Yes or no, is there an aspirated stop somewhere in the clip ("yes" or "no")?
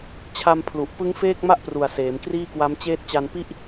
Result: yes